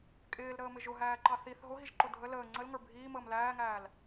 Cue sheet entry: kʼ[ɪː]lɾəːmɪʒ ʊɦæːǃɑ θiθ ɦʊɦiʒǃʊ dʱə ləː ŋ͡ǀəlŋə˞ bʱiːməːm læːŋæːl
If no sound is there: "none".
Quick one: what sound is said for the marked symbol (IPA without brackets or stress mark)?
ɪː